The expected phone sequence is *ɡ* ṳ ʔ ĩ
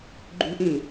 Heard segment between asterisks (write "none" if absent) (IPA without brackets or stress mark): ɡ͡ǃ